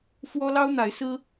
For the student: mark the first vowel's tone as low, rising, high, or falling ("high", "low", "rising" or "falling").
high